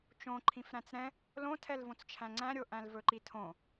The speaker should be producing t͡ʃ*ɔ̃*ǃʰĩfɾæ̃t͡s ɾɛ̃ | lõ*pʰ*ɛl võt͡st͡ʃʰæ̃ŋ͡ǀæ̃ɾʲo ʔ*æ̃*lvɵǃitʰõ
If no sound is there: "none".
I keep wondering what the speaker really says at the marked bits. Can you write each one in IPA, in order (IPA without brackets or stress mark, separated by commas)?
õ, tʰ, æ̃